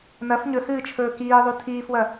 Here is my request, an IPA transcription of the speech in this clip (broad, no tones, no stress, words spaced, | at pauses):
nɐf ɲɵhɨːt͡ʃʰɵː kiːðˤu tʰiːfwɐ